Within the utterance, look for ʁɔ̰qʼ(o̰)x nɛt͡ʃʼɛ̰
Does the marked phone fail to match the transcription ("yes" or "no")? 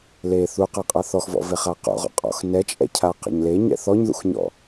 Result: yes